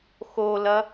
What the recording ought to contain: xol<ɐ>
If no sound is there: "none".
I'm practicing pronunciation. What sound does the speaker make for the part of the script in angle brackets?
ɐ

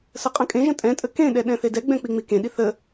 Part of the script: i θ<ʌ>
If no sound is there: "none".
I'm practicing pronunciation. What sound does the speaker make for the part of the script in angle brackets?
ə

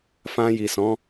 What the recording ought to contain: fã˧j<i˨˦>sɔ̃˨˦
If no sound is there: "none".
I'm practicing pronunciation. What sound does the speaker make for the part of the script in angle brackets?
i˨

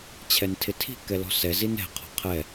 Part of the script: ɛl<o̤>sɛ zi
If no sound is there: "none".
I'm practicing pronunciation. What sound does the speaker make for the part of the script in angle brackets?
ɔ̤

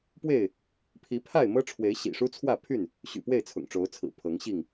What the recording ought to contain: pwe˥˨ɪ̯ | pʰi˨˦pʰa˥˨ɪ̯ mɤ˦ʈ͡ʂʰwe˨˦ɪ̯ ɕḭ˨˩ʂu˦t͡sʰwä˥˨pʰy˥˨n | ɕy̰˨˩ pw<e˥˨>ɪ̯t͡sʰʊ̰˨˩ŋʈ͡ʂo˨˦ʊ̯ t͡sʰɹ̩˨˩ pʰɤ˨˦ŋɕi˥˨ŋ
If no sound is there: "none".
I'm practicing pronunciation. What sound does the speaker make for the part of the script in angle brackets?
e˥˨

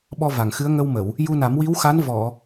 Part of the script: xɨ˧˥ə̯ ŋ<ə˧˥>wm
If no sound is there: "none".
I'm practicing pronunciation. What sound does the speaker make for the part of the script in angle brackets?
ə˧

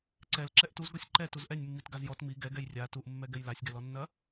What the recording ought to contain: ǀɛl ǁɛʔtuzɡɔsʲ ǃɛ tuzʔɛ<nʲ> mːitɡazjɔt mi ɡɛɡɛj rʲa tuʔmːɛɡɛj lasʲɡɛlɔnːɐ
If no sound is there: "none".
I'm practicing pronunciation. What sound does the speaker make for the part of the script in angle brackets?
nʲ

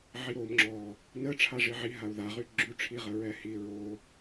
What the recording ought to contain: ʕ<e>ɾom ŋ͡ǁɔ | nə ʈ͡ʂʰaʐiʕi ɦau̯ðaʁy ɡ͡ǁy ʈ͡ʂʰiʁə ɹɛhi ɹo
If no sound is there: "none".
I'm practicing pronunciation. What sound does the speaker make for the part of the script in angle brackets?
i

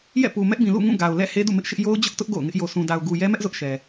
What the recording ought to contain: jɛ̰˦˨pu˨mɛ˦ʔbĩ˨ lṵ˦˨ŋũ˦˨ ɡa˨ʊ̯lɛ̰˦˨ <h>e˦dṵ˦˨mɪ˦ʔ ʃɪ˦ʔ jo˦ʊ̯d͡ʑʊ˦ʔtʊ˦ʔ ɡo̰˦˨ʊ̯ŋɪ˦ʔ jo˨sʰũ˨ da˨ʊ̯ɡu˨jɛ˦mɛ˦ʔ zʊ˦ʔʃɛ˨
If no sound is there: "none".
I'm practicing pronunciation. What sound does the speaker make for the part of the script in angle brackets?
h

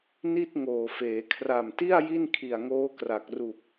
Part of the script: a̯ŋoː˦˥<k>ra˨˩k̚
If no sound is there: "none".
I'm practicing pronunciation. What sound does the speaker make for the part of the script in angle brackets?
k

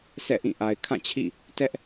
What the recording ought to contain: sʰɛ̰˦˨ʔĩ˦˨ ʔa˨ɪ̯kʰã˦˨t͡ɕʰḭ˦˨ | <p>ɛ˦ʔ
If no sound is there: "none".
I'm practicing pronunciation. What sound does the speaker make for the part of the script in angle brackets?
t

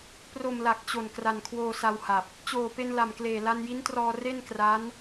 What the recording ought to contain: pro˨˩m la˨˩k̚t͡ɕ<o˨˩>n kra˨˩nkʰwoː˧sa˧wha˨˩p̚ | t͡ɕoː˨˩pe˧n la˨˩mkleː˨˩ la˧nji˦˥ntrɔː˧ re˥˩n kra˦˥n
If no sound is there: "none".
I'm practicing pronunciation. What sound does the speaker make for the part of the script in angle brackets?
o˨˩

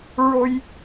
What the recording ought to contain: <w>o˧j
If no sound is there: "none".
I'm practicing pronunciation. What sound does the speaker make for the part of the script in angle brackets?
ɹ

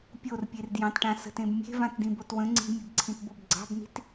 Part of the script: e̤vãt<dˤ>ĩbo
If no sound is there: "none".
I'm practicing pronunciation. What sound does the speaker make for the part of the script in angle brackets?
d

